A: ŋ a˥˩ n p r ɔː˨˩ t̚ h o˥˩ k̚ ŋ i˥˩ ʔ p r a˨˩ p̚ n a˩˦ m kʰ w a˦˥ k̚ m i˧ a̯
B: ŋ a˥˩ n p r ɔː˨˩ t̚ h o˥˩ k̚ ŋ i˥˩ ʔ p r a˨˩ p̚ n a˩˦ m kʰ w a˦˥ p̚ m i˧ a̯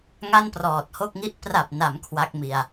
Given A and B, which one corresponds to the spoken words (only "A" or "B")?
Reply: A